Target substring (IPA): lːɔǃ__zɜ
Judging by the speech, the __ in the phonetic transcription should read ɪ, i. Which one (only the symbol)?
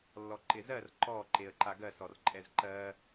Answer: ɪ